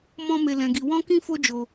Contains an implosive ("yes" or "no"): no